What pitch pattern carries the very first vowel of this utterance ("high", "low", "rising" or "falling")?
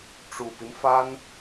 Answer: low